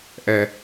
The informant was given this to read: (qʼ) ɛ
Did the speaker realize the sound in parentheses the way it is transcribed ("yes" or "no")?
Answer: no